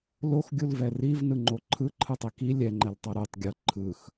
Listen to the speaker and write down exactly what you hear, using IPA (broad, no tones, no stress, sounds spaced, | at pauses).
l o x ɡʲ u l v ɛ r i v n ɯ ŋ͡ǃ o ǃʰ ɯ ǃʰ ɯ tˤ i k i lʲ ɛ ŋ͡ǃ ɛ l tˤ o ɾ o tˤ ɡʲ ɤ ǃʰ ɯ x